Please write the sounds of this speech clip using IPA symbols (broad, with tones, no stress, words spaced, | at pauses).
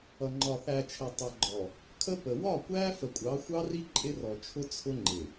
ʌ˨ŋ͡ǃɒ˨θæ˨t͡ʃʰə˨ tˤʌ˨ɡ͡ǃɔ˨ | kʰə˦pə˨ wɒ˦˨kʷæ˦ fə˨kʷʼɑ˨˦xʷɑ˦ri˦ ǃʼɪ˦rɔ˨ t͡ʃʰʊ˦ t͡sʰʊ˦ŋ͡ǃɪ˨